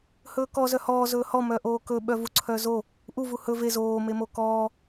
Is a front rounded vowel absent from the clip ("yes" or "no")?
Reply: no